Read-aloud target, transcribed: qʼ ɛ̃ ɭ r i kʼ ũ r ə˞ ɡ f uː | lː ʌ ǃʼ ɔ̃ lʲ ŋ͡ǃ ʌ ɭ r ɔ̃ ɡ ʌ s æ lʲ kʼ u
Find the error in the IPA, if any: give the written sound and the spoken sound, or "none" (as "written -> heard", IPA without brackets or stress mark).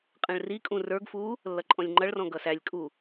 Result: none